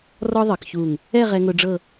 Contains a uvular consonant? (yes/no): yes